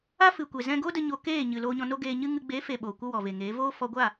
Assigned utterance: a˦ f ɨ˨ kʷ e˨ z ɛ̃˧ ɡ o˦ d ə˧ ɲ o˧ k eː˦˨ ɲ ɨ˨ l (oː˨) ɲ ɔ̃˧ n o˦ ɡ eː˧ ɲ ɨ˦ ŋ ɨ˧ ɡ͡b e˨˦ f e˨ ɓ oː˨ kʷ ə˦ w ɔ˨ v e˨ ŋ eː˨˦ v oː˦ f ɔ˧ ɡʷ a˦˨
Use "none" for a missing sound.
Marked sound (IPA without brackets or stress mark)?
oː˧